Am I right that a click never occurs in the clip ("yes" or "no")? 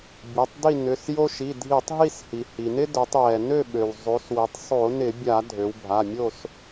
yes